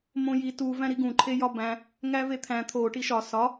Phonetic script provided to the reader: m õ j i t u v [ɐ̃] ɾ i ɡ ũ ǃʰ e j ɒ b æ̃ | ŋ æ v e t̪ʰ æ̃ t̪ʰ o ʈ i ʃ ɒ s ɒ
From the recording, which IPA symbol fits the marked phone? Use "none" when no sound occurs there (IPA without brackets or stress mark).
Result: æ̃